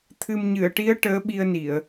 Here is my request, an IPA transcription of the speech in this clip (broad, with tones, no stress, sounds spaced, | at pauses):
t̪ʰ ɨ˨˩ m ɲ ɨ˨˩˨ ə̯ ʈ i˧˥ ə̯ ʈ əː˧˥ ɓ i˧ ə̯ n i˨˩˨ ə̯